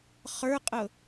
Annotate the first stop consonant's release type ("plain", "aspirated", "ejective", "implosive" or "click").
ejective